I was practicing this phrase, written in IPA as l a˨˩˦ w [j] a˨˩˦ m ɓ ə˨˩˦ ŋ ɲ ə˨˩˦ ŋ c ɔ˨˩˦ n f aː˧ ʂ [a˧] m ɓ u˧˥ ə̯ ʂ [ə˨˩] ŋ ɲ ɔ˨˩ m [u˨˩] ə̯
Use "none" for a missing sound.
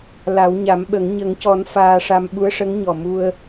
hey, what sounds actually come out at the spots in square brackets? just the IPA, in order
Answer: ɲ, a˧, ə˧˥, u˧

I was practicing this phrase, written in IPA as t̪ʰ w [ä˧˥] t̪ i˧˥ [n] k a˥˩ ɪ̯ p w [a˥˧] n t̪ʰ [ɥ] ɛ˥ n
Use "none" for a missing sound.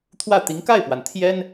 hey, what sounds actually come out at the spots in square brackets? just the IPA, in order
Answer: ä˥˩, ŋ, a˩, j

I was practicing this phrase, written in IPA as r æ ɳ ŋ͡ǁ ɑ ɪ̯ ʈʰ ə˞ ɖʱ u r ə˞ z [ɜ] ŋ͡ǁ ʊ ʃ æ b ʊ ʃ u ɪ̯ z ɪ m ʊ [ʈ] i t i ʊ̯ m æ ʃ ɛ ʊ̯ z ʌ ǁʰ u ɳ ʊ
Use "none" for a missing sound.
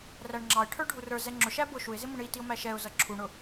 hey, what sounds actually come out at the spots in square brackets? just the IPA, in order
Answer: ɛ, ɳ

